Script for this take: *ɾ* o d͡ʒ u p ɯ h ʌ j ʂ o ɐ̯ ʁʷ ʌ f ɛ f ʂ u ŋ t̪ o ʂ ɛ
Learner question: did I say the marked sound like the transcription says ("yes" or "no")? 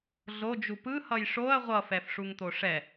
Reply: no